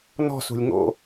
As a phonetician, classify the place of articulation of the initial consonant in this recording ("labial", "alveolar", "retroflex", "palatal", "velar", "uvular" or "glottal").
alveolar